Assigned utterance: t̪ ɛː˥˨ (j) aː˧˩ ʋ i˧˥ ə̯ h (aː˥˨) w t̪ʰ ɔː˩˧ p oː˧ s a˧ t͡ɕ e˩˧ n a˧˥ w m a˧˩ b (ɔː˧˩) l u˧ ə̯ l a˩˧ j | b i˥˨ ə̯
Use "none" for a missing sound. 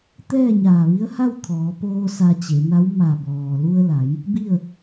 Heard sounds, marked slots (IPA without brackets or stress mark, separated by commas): ɲ, a˥˨, ɔː˩